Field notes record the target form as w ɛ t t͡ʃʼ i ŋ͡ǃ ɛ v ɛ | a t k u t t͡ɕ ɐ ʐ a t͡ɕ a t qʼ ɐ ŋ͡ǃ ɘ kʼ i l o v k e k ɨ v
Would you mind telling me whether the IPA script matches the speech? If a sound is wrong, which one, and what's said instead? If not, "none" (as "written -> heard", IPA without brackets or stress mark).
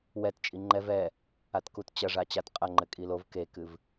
none